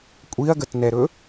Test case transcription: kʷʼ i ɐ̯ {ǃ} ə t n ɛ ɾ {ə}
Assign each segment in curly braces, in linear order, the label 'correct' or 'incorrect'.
incorrect: ɡ, incorrect: ɵ

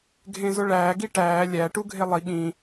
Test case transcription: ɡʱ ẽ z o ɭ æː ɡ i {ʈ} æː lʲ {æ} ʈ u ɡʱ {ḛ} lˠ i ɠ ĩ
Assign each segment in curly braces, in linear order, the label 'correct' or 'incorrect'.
correct, correct, incorrect: e

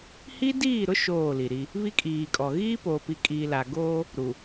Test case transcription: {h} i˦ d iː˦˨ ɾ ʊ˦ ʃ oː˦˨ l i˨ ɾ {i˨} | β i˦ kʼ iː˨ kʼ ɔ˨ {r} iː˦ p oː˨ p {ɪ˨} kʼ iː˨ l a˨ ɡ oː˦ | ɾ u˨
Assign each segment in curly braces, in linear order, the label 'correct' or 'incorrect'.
correct, incorrect: i˦, incorrect: ɣ, incorrect: i˨

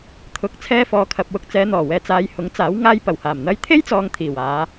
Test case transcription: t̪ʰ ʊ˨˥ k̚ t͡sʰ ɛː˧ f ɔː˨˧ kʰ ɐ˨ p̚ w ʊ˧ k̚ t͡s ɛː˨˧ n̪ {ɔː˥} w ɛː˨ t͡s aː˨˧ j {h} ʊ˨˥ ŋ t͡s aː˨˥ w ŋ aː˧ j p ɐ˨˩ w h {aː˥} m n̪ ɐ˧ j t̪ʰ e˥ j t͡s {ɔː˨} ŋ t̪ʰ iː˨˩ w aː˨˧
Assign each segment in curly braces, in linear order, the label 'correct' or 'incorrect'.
incorrect: ɔː˨˩, correct, incorrect: aː˨˩, correct

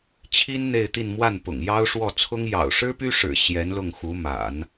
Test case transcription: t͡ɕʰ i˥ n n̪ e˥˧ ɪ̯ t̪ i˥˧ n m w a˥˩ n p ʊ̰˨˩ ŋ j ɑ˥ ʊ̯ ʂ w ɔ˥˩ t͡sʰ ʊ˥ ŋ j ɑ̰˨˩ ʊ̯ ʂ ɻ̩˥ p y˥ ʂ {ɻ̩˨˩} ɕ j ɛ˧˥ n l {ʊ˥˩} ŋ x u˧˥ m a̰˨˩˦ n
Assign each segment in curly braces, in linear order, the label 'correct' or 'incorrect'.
correct, correct

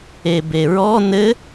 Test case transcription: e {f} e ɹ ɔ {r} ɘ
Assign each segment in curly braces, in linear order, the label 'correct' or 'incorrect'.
incorrect: b, incorrect: n

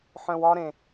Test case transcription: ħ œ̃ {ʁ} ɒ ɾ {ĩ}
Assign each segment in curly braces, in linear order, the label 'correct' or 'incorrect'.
incorrect: w, incorrect: ẽ

